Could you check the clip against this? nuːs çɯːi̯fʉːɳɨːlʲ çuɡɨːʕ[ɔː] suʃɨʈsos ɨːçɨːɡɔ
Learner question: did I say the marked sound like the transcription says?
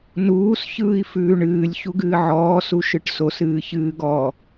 yes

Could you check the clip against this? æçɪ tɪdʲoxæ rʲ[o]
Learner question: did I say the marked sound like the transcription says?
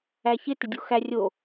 yes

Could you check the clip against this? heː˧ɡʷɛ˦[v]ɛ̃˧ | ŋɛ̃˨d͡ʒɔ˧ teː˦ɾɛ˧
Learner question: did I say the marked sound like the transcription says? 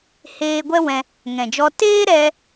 no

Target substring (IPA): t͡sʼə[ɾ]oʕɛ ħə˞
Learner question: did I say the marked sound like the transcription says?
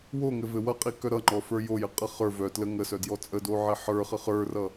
no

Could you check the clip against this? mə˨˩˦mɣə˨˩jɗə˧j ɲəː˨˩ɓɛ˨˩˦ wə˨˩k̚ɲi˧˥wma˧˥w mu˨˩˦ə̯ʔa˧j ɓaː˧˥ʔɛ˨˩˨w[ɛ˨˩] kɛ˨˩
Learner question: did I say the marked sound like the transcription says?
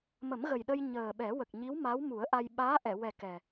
yes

